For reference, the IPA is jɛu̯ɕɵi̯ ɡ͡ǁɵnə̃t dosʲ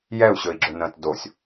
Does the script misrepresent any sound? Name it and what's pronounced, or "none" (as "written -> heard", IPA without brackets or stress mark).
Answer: none